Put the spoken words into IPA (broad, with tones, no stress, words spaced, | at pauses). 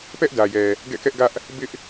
pɛ˦ʔdä˨jɛ˨ | ɡɛ̰˦˨kɛ˦ʔɡä˦ʔ | bɪ˦ʔ